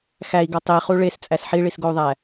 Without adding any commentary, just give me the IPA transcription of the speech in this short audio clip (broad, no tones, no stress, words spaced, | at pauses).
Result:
xæi̯ɡɒ tˤiχu ɭest͡sʼæs ħiɭisɡou̯ðˤæ